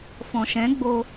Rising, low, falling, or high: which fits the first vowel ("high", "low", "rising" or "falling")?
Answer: low